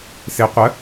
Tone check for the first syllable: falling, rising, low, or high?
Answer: rising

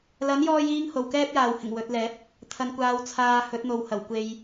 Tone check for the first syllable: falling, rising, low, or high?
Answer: rising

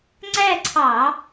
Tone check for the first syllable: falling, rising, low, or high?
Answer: falling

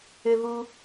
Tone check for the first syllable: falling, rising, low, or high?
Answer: high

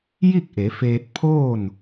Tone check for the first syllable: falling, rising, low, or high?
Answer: falling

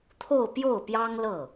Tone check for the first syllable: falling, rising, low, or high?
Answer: falling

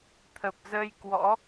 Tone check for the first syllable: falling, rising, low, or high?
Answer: low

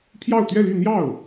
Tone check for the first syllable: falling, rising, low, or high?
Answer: falling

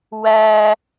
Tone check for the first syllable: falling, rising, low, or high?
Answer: high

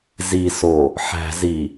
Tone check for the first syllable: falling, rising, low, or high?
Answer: low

